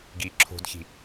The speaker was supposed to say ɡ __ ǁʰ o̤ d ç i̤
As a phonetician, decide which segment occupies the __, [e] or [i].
i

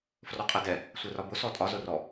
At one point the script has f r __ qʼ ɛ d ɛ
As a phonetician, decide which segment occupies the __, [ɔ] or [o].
ɔ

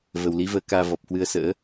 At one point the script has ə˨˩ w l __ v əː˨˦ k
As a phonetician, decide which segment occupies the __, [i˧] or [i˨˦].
i˨˦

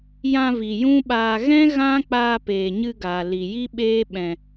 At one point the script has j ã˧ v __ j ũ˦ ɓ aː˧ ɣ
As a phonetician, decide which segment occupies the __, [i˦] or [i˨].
i˨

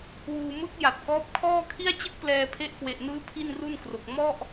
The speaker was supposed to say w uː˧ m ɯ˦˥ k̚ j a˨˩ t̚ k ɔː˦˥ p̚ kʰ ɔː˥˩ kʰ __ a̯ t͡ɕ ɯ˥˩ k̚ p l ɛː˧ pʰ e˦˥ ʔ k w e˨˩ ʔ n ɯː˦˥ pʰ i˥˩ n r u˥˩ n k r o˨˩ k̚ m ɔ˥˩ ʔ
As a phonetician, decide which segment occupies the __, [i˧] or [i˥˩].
i˥˩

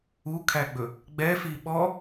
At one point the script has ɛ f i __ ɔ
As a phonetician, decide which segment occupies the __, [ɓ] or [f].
ɓ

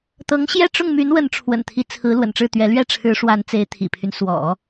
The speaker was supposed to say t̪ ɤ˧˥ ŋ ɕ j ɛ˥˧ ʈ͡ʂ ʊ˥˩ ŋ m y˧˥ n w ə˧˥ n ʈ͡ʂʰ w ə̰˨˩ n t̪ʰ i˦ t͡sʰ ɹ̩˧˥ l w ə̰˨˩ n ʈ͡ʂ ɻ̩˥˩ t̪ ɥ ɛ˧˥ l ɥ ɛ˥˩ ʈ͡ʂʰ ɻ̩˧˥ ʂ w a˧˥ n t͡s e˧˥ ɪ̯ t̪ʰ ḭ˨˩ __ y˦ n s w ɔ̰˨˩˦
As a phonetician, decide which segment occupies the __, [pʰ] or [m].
pʰ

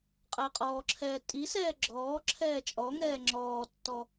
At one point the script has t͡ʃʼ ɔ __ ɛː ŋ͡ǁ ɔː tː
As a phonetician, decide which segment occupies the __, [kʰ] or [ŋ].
ŋ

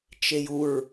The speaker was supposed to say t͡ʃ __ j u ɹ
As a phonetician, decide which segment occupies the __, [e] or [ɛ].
e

